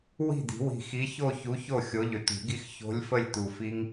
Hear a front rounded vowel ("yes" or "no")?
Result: yes